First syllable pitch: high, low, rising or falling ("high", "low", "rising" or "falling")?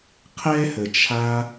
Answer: high